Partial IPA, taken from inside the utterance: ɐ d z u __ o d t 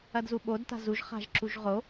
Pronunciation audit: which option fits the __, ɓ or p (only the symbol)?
ɓ